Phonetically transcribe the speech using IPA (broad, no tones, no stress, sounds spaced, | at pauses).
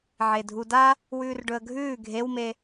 ʕ e dʱ u d a | w ʉː r ɖ ɵ ə̯ ɡʱ ʉː ɡʱ e w m e